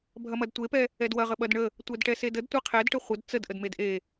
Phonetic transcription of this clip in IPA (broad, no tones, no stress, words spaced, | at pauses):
bʱɐmɐdtʷepɛ | ɛdwɐʁə ɓɐdɳə | tʷɛdʈɛsedəd tʷeqʰɛdʈə χʷəd t͡səd ʔədmedʔe